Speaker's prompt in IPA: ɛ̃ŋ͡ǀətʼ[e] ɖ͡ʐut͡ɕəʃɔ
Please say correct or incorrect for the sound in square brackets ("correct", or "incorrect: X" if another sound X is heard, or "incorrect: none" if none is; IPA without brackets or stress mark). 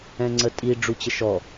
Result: incorrect: i